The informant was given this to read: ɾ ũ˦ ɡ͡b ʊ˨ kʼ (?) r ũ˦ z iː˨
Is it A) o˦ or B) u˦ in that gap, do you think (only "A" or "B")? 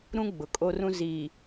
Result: A